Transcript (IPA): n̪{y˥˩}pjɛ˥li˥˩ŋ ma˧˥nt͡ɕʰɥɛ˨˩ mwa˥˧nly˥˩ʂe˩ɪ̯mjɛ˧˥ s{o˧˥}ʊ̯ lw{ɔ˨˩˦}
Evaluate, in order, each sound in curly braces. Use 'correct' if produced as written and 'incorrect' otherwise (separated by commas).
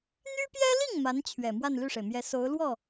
incorrect, correct, incorrect